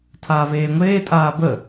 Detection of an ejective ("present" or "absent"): present